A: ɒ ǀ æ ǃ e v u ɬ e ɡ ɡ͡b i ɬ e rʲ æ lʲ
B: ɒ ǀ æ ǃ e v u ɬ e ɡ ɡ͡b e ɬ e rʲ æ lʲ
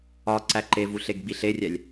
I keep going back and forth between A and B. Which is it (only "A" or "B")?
A